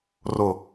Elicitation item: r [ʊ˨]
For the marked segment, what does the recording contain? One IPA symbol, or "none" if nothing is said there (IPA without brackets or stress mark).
ʊ˨